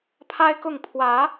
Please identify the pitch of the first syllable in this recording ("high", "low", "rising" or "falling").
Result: high